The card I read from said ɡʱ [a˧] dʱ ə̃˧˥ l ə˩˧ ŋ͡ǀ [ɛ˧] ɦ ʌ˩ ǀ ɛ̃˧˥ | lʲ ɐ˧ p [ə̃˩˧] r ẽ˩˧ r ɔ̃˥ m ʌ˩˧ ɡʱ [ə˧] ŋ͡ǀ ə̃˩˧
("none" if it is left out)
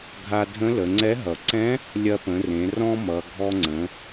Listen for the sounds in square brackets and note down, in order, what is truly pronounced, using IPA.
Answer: a˧, ɛ˧˥, ə̃˩˧, ɔ˧

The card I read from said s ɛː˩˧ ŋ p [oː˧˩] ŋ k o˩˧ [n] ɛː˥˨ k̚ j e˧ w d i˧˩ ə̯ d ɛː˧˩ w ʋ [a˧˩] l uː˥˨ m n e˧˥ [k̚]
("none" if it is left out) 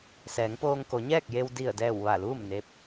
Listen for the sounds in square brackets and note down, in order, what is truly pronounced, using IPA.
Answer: oː˧, ɲ, a˧˩, p̚

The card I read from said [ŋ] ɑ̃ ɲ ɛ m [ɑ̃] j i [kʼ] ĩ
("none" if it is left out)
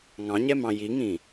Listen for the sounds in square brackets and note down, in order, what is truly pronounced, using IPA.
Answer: ŋ, ɑ̃, ŋ

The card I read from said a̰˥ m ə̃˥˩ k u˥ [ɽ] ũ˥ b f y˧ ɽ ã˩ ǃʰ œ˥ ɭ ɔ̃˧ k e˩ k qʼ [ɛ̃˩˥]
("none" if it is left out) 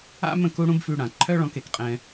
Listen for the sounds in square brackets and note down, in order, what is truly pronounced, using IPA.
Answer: ɽ, ɛ̃˧

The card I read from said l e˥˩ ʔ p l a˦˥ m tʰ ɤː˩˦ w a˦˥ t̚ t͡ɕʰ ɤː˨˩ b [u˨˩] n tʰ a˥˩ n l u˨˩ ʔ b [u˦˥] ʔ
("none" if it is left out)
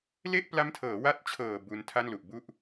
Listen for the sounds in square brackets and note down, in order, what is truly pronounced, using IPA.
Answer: u˧, u˥˩

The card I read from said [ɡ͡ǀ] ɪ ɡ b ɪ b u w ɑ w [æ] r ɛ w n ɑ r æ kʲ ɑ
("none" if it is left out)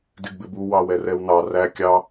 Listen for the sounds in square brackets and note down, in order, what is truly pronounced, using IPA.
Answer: d, ɛ

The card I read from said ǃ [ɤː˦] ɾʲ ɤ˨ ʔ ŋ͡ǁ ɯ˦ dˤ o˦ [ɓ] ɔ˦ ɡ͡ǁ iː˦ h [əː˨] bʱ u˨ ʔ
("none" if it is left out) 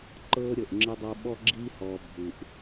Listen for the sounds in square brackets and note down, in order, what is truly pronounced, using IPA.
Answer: ɤː˦, ɓ, ɔː˨

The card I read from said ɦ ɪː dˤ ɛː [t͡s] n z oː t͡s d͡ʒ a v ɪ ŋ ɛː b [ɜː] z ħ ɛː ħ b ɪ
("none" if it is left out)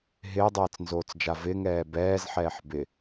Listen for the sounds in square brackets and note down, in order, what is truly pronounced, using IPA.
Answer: t͡s, ɛː

